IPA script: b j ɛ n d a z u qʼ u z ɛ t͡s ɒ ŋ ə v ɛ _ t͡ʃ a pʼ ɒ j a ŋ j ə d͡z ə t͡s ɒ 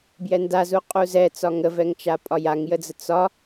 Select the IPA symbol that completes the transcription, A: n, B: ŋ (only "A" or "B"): B